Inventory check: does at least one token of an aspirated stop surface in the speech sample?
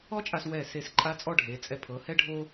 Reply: yes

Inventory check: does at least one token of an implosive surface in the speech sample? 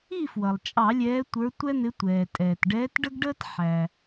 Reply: no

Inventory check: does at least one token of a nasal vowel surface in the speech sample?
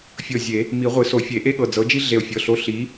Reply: no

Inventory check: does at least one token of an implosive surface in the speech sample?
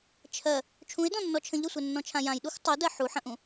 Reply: yes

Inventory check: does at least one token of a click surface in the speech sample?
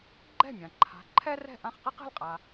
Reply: yes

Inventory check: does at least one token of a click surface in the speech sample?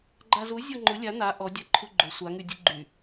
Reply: yes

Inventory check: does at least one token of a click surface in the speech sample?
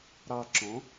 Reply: yes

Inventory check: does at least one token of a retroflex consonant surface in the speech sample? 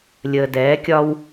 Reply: no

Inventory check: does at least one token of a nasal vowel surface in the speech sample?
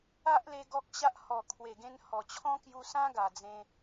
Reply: yes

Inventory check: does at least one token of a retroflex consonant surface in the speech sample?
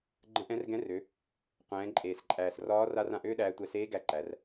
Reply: no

